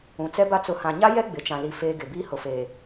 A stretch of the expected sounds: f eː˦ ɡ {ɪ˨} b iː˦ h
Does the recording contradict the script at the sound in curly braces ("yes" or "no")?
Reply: no